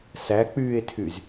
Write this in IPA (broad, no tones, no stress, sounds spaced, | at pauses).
s æ k͡p yː e̯ tʰ y z